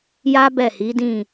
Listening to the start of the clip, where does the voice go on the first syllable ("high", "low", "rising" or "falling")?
high